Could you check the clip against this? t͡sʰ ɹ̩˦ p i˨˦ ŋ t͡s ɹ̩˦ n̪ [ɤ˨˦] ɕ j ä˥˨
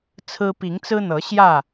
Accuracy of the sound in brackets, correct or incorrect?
correct